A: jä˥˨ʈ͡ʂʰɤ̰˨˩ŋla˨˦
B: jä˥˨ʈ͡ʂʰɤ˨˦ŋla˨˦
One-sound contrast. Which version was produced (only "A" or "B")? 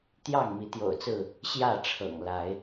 A